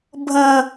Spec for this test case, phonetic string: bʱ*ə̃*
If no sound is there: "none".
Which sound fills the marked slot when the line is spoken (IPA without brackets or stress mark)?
ə̃